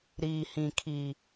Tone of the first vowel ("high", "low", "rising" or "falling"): low